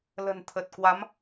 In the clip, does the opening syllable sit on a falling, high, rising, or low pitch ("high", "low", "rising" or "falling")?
low